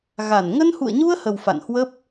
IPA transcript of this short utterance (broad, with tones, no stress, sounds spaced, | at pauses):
ɣ a˧˩ n ŋ ə˧ n h ṵ˧˨ ə̯ ɲ u˧ ə̯ h ə˨˩ w f a̰˧˨ n h w ə˦˥ p̚